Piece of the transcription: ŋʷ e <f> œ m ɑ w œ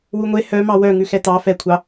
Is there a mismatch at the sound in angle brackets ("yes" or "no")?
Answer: yes